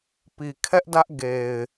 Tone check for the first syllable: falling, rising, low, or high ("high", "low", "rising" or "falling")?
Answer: low